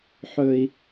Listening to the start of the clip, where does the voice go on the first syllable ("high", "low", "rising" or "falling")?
high